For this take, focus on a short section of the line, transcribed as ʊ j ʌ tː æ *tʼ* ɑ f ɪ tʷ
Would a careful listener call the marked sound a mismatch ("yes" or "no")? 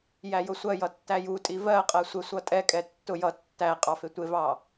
yes